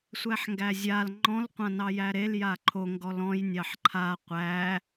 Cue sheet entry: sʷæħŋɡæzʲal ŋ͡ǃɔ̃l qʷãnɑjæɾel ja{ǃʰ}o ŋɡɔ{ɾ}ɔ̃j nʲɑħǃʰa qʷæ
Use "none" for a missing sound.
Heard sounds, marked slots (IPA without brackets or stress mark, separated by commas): ǃʰ, l